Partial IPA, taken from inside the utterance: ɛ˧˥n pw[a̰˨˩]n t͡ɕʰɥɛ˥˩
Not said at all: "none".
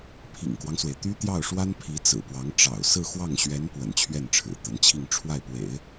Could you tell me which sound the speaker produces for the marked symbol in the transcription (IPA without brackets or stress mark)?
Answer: ə̰˨˩